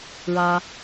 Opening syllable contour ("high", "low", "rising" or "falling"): high